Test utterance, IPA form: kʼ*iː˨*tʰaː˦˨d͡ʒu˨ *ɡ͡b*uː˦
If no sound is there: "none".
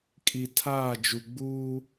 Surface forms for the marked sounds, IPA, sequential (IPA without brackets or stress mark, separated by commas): i˨, ɡ͡b